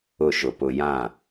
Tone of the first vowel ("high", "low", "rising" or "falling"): falling